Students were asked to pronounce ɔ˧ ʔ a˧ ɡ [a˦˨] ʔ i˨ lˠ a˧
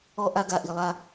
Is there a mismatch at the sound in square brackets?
yes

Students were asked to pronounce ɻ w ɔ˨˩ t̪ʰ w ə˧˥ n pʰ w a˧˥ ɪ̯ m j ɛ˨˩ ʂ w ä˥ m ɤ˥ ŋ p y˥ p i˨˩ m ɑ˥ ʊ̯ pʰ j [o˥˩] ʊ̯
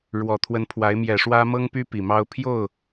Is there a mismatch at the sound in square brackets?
no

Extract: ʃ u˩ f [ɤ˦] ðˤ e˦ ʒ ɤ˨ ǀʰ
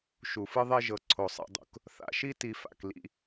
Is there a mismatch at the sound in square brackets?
yes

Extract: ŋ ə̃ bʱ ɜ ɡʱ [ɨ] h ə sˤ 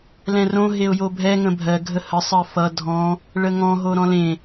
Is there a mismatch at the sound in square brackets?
yes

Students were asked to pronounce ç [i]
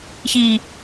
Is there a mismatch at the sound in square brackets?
no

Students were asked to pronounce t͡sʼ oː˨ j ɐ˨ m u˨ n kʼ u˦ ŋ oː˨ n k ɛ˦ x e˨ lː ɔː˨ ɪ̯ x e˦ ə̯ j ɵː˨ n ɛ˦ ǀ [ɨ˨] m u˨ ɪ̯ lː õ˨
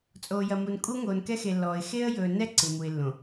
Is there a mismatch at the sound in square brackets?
no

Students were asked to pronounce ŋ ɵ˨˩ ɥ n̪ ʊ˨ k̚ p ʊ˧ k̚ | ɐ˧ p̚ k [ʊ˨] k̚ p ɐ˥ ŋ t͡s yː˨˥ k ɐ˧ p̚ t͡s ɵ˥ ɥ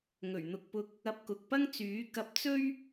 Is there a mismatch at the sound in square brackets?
no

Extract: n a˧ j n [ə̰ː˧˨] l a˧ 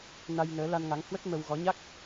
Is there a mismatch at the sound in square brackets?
yes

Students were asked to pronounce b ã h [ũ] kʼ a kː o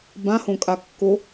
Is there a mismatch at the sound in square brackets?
yes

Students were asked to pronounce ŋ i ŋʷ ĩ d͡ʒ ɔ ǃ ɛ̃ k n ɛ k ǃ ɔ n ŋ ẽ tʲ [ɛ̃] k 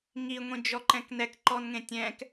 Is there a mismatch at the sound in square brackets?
no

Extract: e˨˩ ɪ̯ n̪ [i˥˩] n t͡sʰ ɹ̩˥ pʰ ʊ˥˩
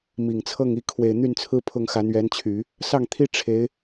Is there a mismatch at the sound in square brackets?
yes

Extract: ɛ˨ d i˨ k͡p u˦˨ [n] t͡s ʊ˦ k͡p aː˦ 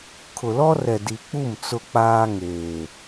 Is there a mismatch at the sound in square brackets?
yes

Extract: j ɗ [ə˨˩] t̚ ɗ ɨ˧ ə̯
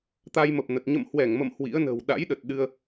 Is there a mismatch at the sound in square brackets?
no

